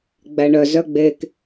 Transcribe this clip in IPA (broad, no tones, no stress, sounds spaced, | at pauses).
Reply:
ɡ͡b æ ɳ œ z œ ɡ͡b e k